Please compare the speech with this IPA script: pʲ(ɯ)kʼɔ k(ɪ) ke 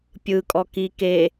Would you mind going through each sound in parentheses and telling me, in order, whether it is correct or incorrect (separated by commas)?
correct, incorrect